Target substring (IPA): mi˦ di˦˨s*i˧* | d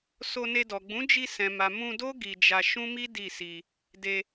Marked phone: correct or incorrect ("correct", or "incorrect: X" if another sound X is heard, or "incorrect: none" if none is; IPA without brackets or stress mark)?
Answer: correct